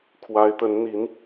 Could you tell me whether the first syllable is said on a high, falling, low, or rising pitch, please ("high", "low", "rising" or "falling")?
rising